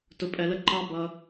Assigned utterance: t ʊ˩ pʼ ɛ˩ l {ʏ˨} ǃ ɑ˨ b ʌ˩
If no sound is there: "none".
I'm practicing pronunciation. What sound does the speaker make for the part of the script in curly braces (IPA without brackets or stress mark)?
ə˨